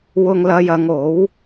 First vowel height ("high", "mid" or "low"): high